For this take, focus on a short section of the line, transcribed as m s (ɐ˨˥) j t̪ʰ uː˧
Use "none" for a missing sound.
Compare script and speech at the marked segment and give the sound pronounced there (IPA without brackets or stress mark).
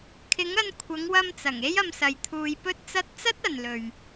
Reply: ɐ˨